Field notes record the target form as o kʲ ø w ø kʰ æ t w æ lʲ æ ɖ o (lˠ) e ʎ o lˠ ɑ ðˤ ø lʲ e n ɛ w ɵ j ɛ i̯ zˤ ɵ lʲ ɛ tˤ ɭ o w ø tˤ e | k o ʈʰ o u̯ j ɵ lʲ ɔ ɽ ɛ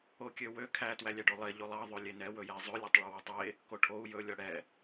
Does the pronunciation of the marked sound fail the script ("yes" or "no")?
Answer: no